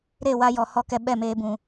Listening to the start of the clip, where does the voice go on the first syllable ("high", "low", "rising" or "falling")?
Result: falling